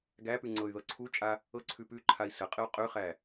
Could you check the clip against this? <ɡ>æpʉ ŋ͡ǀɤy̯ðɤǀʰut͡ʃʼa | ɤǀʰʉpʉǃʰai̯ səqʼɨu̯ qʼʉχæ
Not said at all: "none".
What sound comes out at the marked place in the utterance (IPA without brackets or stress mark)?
ɡ